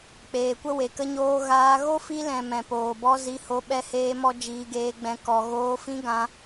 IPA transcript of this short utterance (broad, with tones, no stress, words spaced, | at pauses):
k͡peː˨kʷə˦we˨ kə˦ɲoː˦ ɣaː˧ ɣo˦fi˧lɛ̃˨ mɛ̃˨poː˨bɔ˦ zi˧ho˧ ɓɛ˦heː˦mɔ˦ d͡ʒiː˧ɡeː˧ɡ͡bɛ̃˧ kɔ˨ɣoː˧ fĩ˧ ɡã˧